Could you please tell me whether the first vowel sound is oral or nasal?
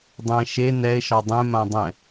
nasal